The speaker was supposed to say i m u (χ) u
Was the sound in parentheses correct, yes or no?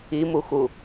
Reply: no